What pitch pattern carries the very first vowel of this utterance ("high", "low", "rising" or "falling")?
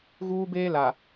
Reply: high